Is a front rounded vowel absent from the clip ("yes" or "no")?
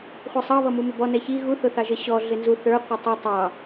yes